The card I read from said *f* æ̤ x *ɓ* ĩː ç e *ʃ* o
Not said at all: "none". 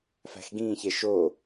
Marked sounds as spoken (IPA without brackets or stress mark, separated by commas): f, ɡ, ʃ